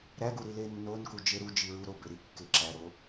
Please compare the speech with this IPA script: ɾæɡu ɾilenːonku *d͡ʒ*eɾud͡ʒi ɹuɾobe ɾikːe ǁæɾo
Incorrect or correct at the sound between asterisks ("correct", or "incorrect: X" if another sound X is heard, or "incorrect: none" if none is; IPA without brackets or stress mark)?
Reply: correct